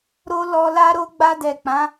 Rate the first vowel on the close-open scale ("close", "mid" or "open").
mid